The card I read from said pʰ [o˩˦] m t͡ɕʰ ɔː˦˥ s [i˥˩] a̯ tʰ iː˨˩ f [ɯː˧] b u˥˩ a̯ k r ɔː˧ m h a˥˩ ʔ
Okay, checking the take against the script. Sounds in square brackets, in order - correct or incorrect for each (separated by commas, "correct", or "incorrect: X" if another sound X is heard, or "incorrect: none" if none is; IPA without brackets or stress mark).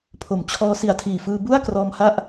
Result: incorrect: o˨˩, incorrect: i˨˩, correct